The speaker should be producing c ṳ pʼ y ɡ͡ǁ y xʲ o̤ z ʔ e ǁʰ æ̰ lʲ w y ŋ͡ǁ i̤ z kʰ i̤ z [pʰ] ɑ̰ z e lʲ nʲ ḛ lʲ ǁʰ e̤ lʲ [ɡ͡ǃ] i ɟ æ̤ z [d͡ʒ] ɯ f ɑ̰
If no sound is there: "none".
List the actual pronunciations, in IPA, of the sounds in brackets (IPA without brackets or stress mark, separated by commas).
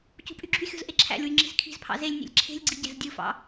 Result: pʰ, ɡ͡ǀ, dʲ